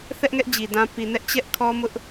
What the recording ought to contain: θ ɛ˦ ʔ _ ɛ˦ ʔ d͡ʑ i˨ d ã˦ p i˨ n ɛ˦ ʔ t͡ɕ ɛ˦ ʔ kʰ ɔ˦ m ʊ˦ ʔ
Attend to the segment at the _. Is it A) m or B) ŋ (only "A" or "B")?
B